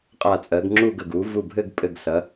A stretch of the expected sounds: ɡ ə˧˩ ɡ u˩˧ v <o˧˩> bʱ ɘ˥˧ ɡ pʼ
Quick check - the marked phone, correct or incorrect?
incorrect: u˧˩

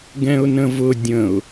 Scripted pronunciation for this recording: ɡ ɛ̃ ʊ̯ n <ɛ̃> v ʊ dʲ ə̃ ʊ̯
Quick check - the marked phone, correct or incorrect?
incorrect: ə̃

